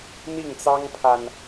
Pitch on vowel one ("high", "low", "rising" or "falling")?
falling